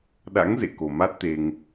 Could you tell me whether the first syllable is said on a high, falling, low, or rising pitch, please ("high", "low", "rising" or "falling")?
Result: rising